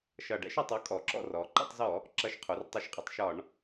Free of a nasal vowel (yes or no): yes